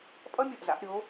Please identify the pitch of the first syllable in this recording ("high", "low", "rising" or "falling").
high